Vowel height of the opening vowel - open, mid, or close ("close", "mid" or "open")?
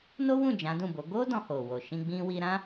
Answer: mid